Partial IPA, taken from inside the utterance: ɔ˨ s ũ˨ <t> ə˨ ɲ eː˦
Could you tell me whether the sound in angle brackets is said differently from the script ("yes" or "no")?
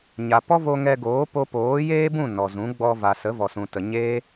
no